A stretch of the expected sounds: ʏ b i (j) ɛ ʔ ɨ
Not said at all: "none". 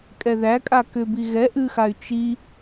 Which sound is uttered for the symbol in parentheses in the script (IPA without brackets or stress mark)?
ɣ